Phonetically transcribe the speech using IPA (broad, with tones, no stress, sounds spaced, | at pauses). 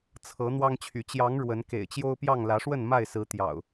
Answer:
t͡sʰ ɤ˨˦ n̪ w ɑ˦ ŋ t͡ɕʰ y˨˦ t͡ɕ j ɑ˨˦ ŋ ɻ w ə˨˦ n k ḛ˨˩ ɪ̯ t͡ɕ j o˦ ʊ̯ p j ɑ˥˨ ŋ l ä˨˦ ʂ w ə˥˨ n m a˥˨ ɪ̯ s ɹ̩˨˦ t̪ j ɑ̰˨˩ ʊ̯